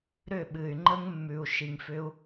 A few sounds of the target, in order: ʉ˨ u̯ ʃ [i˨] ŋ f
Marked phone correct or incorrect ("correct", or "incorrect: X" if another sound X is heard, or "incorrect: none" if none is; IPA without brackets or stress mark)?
correct